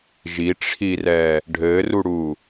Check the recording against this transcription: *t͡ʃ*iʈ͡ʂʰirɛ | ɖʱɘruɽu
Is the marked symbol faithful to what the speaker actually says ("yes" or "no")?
no